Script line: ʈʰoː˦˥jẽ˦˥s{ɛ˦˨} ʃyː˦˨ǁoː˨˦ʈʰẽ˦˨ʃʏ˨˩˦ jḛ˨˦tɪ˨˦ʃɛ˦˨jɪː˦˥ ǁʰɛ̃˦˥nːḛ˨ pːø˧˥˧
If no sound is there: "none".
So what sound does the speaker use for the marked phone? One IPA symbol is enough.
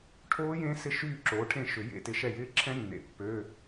ɪ˦˨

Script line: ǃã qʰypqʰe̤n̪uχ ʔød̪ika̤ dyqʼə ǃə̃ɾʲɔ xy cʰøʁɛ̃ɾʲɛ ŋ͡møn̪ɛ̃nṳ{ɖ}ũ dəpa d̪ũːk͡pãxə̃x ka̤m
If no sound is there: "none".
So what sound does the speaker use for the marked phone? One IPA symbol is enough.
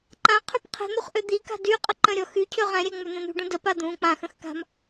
ɖ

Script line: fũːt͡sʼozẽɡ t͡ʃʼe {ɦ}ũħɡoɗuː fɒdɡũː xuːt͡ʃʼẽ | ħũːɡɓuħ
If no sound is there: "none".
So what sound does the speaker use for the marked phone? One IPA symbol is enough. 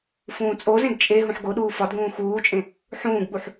ɦ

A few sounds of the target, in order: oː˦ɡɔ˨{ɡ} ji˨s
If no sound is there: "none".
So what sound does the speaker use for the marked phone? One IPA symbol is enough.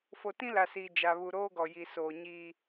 none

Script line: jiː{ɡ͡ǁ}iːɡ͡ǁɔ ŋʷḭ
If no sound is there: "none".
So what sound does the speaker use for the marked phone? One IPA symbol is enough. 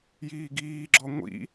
ɡ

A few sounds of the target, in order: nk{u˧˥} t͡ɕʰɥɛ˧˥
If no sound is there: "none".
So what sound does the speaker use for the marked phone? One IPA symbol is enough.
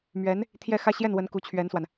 u˧˥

